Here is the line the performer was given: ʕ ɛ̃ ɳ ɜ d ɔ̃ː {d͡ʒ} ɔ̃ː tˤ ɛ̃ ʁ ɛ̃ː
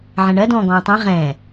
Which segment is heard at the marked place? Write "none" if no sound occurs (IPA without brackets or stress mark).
ɡ